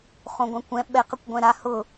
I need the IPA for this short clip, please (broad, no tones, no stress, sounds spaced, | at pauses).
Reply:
χ õ ɡʷ ã kʷ ɛ̃ ɓ ɛ q ə kʷ ɡʷ ɛ̃ ɾ a h ʊ